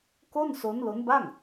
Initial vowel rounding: rounded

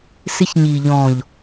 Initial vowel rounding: unrounded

